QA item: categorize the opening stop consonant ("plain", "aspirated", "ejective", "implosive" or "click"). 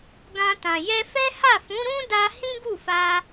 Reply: plain